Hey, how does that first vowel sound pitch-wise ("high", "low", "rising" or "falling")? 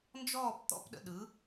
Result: falling